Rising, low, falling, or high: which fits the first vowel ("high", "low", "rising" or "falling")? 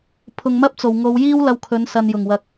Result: low